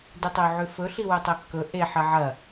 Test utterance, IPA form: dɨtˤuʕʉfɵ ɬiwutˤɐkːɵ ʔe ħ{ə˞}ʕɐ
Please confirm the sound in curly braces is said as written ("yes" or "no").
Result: no